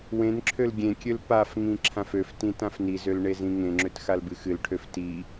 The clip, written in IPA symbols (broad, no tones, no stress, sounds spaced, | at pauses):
w ẽ n ǁʰ ø l ɡʲ ẽ kʲ ø l p a f ŋ ĩ ǁʰ ã f ø f t ĩ t ã f n i z ø l ɳ e z ĩ ŋ ẽ ŋ͡ǁ ø t x a l b ɨ x ɨ l ʈʰ ø f t i